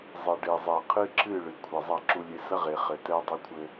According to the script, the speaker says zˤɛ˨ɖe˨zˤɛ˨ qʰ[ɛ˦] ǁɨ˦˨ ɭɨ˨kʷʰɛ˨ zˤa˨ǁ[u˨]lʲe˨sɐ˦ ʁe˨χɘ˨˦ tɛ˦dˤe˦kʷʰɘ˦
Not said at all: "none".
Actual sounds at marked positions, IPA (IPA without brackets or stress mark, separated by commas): ɨ˦, u˨